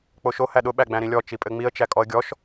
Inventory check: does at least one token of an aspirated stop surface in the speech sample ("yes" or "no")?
no